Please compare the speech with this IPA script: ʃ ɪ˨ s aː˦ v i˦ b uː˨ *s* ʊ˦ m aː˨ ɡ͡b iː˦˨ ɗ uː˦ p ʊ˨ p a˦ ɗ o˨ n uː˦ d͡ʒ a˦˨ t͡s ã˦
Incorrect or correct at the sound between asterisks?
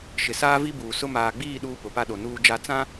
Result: correct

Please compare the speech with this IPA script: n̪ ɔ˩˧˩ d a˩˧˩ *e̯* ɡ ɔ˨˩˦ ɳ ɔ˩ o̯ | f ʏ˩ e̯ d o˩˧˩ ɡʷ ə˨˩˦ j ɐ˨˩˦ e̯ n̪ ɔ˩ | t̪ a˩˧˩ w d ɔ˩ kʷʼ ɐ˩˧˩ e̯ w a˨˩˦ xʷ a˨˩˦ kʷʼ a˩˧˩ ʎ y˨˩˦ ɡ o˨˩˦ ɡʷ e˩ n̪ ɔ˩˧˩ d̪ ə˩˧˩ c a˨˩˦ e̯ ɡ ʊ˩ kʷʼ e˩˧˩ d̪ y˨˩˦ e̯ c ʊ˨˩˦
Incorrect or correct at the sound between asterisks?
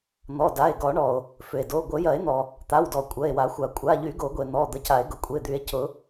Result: correct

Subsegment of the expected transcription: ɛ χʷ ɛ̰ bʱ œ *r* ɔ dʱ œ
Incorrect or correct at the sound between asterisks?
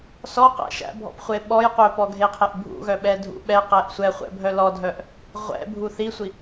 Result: incorrect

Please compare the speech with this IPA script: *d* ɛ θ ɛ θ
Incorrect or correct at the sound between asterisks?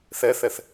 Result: incorrect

